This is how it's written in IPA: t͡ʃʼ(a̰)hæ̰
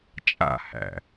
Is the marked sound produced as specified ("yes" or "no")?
yes